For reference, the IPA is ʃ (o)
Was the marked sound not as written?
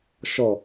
yes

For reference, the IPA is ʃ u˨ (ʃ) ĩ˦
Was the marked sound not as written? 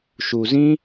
yes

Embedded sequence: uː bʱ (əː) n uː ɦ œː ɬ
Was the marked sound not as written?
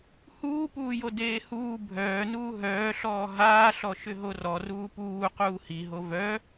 yes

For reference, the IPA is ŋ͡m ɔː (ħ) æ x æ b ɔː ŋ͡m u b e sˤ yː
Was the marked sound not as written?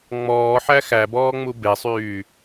no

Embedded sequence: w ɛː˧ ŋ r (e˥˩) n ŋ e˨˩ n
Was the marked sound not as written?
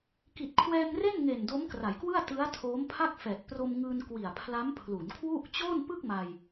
no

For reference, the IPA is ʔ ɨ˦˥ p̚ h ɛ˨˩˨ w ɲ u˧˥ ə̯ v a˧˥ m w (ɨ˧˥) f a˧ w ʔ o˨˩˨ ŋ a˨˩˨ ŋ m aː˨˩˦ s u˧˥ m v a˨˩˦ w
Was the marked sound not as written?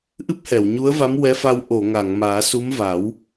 yes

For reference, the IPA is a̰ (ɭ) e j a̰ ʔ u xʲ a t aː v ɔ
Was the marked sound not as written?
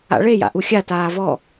no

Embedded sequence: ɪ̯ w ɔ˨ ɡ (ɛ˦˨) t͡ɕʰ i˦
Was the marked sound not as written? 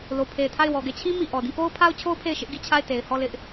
no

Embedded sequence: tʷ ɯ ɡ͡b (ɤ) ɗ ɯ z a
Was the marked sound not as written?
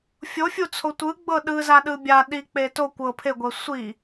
no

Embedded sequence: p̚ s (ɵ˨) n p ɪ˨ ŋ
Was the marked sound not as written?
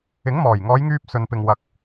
no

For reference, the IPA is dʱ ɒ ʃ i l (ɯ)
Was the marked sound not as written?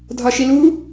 yes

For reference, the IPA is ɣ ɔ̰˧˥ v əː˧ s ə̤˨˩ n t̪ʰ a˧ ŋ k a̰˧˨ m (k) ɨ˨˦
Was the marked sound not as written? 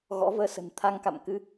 no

